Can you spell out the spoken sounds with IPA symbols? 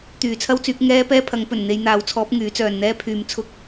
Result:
t̪yː˨t͡sʰɐ˥wt͡syː˨˥k̚ ŋɛː˥ pɛː˥pʰɐ˨˥ŋpɵ˨˩n n̪e˨˧jn̪aː˨˥wt͡sʰɔː˨˥p̚ ŋyː˨˥t͡sœː˨nn̪ɛː˥pʰyː˧m t͡sʰʊ˥k̚

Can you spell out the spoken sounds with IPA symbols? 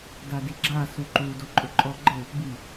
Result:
dadiɡ͡ǁa suǃu doǃʼʊǃʼɔ ɡ͡ǃɘ | bi

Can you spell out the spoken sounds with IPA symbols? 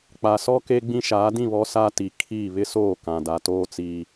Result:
k͡pa˨sɔ˦ ke˦ɡ͡bĩ˦ʃaː˨˦ dĩ˦˨βɔ˨˦ sa˦ti˨kʰiː˦˨ βɪ˦soː˦˨ kã˨da˨toː˦ t͡siː˦

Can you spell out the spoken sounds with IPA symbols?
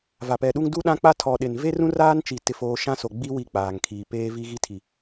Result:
va˨pɛ˨ɗu˦ŋ du˦ɗã˦k͡pa˦ tʰɔ˨ɗɪ˨n ve˦rũ˦raː˦nt͡ʃi˨ tɪ˦foː˦ ʃã˦so˨ɡ͡bi˦ wi˦˨k͡paː˨ŋkʰiː˨ peː˦vi˦ɣi˦tʰi˨

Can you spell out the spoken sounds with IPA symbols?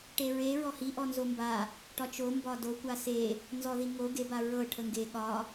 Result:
ʈeɹe ɹɔhi ʔɔnzomba | ʈɒt͡ʃo mbɒdo kʷase | nzɔðiŋo ɡe baɹɤ ʈʰəŋɡe ɠɒ

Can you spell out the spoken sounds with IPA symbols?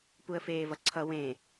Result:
puə̯feːvʌǀʰʌ wẽ

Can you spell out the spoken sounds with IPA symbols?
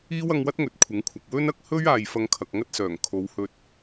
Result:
iː˥w ɐ˧ŋwɐ˥t̚ŋɵ˨t̚ kʷʰɪ˨˥ŋkʷʰɐ˨k̚ wɵ˥nɐ˧k̚ hɵ˥ɥaː˨j fɐ˧ŋkʰɐ˨k̚ŋɐ˥t̚sœː˨˩ŋ kʰo˨˧whɵ˧t̚

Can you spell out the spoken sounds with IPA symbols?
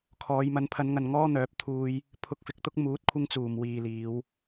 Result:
kʰɔː˨˧j mɐ˨˧npʰɐ˨˧nŋɐ˨n ŋɔː˥n̪œː˨˥p̚ t̪ʰuː˧j | pʰʊ˧k̚fɪ˧k̚t̪ʊ˥k̚ muː˨˥t̚kʷʰɪ˧ŋt͡suː˨˩m wiː˨liː˨˧w

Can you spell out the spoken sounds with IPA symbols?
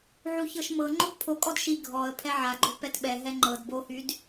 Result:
ʕuçɤʃmɤ ŋ͡ǃobpʰokʼɔd ʃi ɡʱɔə̯ pʰɛʕaɡ͡ǃo pɛtɓɛ ɦɛŋ͡ǃɤd bohyd

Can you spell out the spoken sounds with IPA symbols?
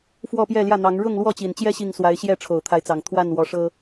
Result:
fwɔ˥˨pjɛ˥˨ljä˥˨n̪ɑ˨˦ŋ ɻʊ˥˨ŋlwɔ˥˨t͡ɕi˨˩nt͡ɕjɛ˦ ɕi˥˨ŋ swa˨˦ɪ̯ɕjɛ˥˨ ʈ͡ʂʰo˨˩ʊ̯t̪ʰa˨˦ɪ̯t͡sɑ˨˩ŋ t̪ʰwa˥˨nwɔ˨˦ʂɤ˦

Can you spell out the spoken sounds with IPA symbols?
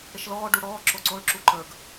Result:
ɽɪʃlɔː ɖuɽɔː ǁoǀoɭ ǁuǃə˞ɡ

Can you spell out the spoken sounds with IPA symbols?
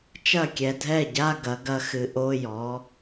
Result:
t͡ʃɐ˥˩kʲɛ˨dʱɛ˥˩ɟa˧˥˧ ɡɐ˩˥ɡɐ˧˥xɨ˩˥ ʔo˧˥˧jɔ˩˥

